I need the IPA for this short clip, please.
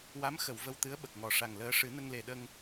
w a˧˥ m x ə˨˩˨ w v ə˧ w t̪ ɨ˧˥ ə̯ ɓ ə˨˩ k̚ ŋ ɔ˨˩ ʂ a˨˩ ŋ l əː˧˥ ʂ ɨ˨˩˦ n ə˧ ŋ l e˨˩ ɗ ə˧ ŋ

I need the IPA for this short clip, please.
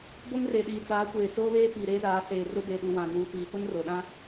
b o˦ ŋ r e˨ ɗ iː˨ t͡s aː˨˦ kʷ eː˨ t͡s oː˦ β eː˦ p iː˨ ɾ eː˦ z aː˨˦ s eː˨ r ʊ˦ b e˨ ɗ u˨ w ã˨ n uː˨ p iː˨ p ʊ˦ n r o˨ ɗ ã˦

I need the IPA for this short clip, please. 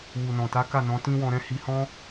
w u˨ n ɔ̃˨ t a˨˦ k a˦˨ n ɔ̃˨˦ t ĩ˦ w ɔ̃˧ ɾ ɛ̃˦ h i˧ h ɔ̃˦

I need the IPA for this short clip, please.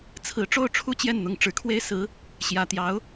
t͡sʰ ɹ̩˧˥ ʈ͡ʂ o˥˧ ʊ̯ ʈ͡ʂʰ u˥˧ t͡ɕ j ɛ˥˩ n n̪ ʊ˧˥ ŋ ʈ͡ʂ ɻ̩˨˩ kʰ w e˥˩ ɪ̯ s ɹ̩˧˥ | ɕ j ä˨˩ t̪ j ɑ˧˥ ʊ̯

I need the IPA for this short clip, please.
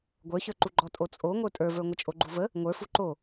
ɡʷ ə˞ ç ə˞ ǃ u ɡ͡ǃ ɔ tʼ o t͡sʼ o ŋʷ ə˞ tʼ ə˞ v ə˞ ŋʷ ə t͡ʃʼ o ɡ͡ǃ u v ə | ŋʷ ə˞ f u ǃ o

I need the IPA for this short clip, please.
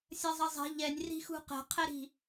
sʲ ɐ zˤ ɐ zˤ ɛ̤ ʎ ɛ nʲ r i̤ x ṳ q ɛ̤ qʰ ɛ ɾ i̤

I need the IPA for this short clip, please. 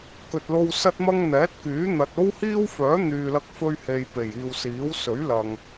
k ɵ˨ t̚ l o˧ w s ɐ˥ t̚ m ɐ˥ ŋ n̪ ɛː˨˥ t̚ k yː˨˥ n̪ ɐ˨ t̚ o˥ w h iː˥ w f œː˨˥ n̪ yː˨ l ɐ˧ k̚ f ɵ˧ ɥ h e˨ j p e˨˩ j iː˨ w s iː˨˥ w s ɵ˨˥ ɥ l ɐ˨ ŋ

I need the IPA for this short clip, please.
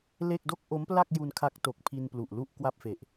l e˥˩ k̚ d o˥˩ k̚ ʔ o˦˥ m p l a˥˩ k̚ j u˧ n kʰ a˦˥ k̚ t o˨˩ k̚ pʰ i˧ n p l u˨˩ ʔ l u˥˩ ʔ k w a˥˩ p̚ f e˨˩ ʔ

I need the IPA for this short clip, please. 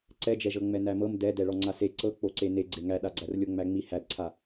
ǀ ɛ d͡ʒ ɛ ʒ ɤ ŋ͡m ɛ n æ m ɤ m d ɛ d ɛ ɭ ɔ ŋ͡ǀ a s e ǀ ɤ k͡p o ǀ e n e ɡ͡ǀ e ŋ æ ɗ a ɡ͡ǀ æ r lʲ o ŋ͡m æ ŋ͡m i h æ d ǀʰ a

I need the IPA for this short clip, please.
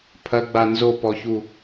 pʰ ɐ ɡ͡b a n z o p ɔ ç u

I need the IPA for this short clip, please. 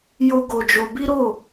j o˦ ɡ o˧ d͡ʒ o˧ b i˦ ɾ o˦˨

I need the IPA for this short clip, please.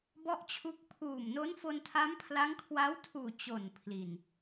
b ɔ˥˩ ʔ t͡ɕʰ u˦˥ k̚ pʰ uː˨˩ m n o˦˥ n f o˧ n tʰ a˦˥ m pʰ l a˦˥ ŋ kʰ w a˦˥ w tʰ uː˨˩ t͡ɕ o˨˩ n pʰ l i˨˩ n

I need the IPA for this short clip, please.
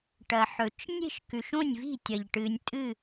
ʈ ɐ˨ ħ ɵ˨ t͡ʃ nʲ e̤˥˨ ʃ k ʉ˨ ʃ õ˥˨ nʲ v i̤˥˨ tʲ ɐ˨ ʎ ʈ ɨ˨ nʲ tʼ ɨ˥˨

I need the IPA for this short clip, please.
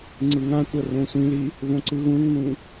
ŋ͡ǀ ɯ ŋ ã tʷ ʌ r õ sʷ ĩ l i | v õ ǀ ɯ ɣ ũ ŋ n ũ

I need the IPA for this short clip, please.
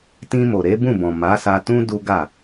t ĩ˧ m o˨ ɾ e˨˦ b ũ˦˨ b ɔ̃˨ m a˨˦ s a˧ t ũ˦ d u˦ ɡ a˦˨

